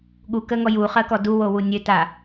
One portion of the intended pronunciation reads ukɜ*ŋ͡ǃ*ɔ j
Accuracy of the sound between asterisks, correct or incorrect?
incorrect